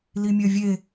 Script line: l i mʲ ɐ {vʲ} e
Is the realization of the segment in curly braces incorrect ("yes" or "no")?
no